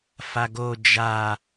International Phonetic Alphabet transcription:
f a ɡ o d͡ʒ a

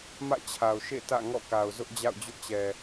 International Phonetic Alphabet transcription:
m ä̰˦˨ t͡ɕʰ a˨ ʊ̯ ʃ ḛ˦˨ t ä̰˦˨ ŋ ɔ̰˦˨ k a˨ ʊ̯ z ʊ˦ ʔ d͡ʑ a̰˦˨ ʊ̯ d͡ʑ ʊ˦ ʔ t͡ɕ ɛ˨

